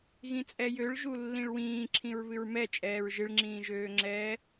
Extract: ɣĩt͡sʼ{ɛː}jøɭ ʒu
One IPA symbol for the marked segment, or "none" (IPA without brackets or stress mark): ɛ